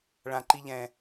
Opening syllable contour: high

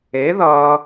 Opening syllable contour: rising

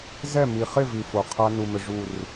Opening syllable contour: falling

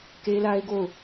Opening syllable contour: high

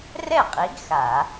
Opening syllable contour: falling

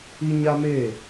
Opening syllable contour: high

